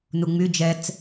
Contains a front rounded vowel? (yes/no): yes